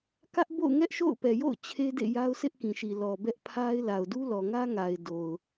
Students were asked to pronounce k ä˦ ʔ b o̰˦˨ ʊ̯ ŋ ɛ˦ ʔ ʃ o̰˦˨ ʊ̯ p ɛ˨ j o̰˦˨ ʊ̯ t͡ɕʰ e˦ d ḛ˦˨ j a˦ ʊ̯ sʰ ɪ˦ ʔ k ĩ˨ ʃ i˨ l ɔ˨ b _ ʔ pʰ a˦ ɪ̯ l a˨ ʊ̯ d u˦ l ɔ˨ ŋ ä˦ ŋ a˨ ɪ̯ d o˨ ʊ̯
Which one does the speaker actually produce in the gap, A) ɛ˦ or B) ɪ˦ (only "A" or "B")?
A